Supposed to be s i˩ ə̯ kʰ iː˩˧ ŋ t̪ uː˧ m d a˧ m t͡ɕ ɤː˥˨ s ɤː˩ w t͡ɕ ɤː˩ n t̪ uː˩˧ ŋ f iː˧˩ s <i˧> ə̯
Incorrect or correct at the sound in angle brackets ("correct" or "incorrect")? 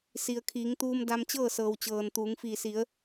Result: incorrect